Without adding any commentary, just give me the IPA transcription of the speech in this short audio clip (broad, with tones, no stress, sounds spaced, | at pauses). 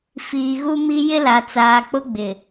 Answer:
f iː˨ ɣ u˦ m i˦ j ɪ˦ l a˨ t͡s aː˨ k͡p ʊ˦ ɡ͡b ɪ˨